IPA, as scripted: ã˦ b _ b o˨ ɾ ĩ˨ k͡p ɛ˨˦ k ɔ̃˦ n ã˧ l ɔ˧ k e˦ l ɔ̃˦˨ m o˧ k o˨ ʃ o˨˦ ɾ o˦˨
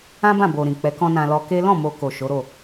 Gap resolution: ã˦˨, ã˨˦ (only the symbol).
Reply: ã˦˨